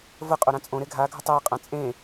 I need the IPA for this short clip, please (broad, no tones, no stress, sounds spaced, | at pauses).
v ə qʼ o ɾ ã t͡sʼ õ ɾ e ɡʱ a ɡʱ ə tˤ e ə̯ qʼ ã t͡sʼ ẽ